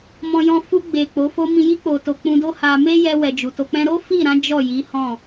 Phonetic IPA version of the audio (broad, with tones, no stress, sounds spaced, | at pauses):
m ɔ̃˧ j ɔ̃˧ f u˧ ɡ͡b e˨ k͡p o˨˦ f o˦ m ĩ˧ j i˦ k͡p o˧ t o˧ k͡p ũ˧ d o˦ h a˧ m e˦ j ɛ˧ w ɛ˨ d͡ʒ u˨ t o˧ k͡p ɛ̃˦ ɾ o˦ f i˦˨ ɾ ã˨˦ d͡ʒ ɔ˦˨ j i˨˦ h ɔ̃˦˨